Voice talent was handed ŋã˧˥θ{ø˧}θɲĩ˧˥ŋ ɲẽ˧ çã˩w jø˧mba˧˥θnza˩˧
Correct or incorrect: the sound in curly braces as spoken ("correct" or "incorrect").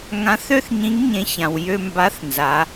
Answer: incorrect